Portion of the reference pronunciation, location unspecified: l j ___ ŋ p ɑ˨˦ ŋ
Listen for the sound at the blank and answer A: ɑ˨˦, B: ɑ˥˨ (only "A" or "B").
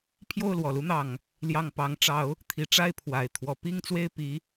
B